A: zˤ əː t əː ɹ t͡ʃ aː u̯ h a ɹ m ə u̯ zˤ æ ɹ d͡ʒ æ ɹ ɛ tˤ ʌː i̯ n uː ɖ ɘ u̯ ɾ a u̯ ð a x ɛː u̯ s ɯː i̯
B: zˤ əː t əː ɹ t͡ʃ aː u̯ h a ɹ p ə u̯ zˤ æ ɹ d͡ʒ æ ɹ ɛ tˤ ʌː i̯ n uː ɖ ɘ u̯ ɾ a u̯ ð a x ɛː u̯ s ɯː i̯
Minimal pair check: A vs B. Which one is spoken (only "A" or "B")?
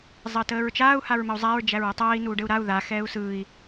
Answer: A